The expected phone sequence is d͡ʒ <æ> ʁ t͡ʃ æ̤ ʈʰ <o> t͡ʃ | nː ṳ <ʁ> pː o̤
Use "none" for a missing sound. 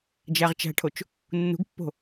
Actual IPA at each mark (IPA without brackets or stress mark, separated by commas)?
æ, o, ɡ